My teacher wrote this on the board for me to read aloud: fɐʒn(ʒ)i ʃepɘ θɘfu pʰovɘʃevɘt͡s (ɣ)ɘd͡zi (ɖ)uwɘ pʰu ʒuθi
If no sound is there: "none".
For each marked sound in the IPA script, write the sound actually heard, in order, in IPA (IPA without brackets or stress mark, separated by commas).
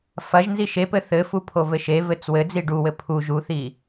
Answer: z, w, ɖ